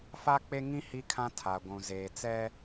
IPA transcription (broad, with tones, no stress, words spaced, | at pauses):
fa˦k͡pe˦ŋĩ˦ hi˦kʰã˦ tʰa˨ɡʷũ˨ zeː˨t͡sɛ˦